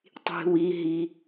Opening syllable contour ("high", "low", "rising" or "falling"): low